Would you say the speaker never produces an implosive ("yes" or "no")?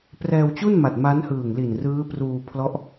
yes